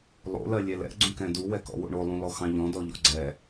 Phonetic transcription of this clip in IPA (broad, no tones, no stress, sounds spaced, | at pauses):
lˠ o̰ l ɜ lʲ ɛ l ɛ̰ ɡ͡ǀ ũ k ɛ̃ d u w ɛ k ɔ̰ w o̰ ɳ o lˠ ũ l ɔ x ɑ̃ ʎ ɔ̃ d ɔ ʎ ɔ̰ ɡ͡ǀ ɛ